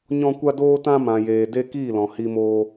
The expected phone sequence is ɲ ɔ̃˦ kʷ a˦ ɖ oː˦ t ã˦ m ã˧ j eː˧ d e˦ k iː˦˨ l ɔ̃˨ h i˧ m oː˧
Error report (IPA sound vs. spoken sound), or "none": ɖ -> d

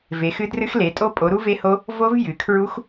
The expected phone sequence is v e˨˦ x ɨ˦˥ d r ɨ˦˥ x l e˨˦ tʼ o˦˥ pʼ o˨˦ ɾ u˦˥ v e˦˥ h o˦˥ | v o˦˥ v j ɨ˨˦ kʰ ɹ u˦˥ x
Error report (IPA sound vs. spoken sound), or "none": none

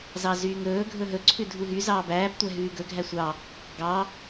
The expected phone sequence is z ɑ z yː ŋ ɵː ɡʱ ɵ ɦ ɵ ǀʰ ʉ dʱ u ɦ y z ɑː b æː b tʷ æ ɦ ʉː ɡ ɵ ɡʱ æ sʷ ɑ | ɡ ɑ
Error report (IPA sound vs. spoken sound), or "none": none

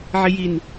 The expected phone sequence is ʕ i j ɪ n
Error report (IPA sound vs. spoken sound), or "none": ɪ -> i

